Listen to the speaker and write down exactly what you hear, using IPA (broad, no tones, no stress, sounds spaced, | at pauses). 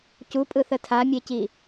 c u pʼ ɯ θ ə tʰ a mʲ e c i